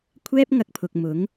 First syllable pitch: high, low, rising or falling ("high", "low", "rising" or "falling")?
high